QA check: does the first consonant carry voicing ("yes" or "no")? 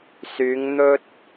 no